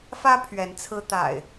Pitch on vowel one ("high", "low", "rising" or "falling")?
high